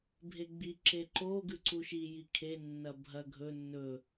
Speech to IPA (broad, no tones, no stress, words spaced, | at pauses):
bʱeɡ͡bi ǁeǃo ɡʉǀuʃi jikʰe nːɐbʱɐ ɡʱɵ nːɵ